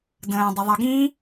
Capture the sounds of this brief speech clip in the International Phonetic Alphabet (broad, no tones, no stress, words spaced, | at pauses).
də̃ː dˤʊðˤə ɡĩ